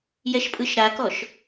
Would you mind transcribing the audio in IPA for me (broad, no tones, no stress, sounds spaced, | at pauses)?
j ɛ ʃ pʼ ɯ ʃ ɾ a k ɔ ʃ